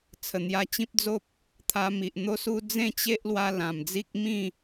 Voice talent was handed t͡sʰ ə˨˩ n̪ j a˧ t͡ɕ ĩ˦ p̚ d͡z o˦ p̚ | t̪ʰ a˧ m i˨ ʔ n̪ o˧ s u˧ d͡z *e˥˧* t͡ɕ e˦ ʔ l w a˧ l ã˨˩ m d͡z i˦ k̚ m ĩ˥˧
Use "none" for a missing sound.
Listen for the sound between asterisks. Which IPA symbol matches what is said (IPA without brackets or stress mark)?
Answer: ẽ˥˧